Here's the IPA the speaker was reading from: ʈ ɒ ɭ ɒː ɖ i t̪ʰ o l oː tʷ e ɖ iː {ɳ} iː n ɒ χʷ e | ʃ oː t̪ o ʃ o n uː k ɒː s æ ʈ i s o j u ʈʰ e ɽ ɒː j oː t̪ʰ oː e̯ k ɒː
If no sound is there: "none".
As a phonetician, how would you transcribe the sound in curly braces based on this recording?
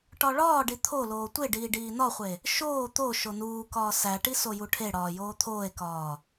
ɖ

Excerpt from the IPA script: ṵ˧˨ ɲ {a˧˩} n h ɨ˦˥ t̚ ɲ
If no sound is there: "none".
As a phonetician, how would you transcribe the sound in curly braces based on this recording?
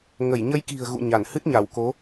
a˧˩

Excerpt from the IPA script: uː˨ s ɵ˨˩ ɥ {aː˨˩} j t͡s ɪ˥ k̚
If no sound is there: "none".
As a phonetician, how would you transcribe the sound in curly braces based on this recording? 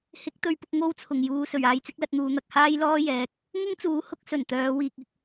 aː˨˧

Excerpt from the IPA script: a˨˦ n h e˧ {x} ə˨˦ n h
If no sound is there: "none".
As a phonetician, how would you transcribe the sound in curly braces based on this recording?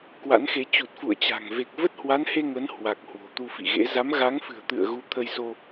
ŋ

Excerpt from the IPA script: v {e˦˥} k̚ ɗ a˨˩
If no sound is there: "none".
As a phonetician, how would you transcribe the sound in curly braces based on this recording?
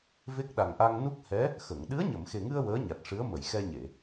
e˦˥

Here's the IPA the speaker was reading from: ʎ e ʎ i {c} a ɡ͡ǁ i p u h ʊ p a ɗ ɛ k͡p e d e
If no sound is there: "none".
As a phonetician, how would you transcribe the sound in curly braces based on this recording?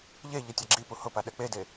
tʲ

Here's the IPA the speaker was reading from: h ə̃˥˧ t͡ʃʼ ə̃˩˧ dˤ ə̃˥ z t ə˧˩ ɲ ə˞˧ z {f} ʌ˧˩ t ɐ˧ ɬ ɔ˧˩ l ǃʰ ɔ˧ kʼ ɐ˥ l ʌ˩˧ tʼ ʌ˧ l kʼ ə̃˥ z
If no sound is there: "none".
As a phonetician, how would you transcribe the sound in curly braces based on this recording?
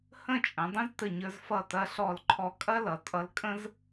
f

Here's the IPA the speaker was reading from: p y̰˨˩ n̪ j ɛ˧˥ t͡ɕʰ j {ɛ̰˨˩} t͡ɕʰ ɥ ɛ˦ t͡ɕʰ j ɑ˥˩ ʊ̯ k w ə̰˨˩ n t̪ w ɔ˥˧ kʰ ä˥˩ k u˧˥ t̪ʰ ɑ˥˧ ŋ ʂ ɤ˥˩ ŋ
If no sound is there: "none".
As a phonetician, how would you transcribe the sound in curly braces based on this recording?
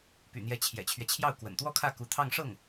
ɛ̰˨˩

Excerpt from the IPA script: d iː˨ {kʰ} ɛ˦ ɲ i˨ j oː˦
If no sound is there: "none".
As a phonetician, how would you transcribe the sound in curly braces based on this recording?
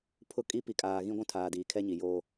kʰ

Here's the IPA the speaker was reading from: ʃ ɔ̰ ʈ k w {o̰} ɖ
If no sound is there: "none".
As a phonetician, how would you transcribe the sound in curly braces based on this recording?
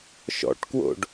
o̰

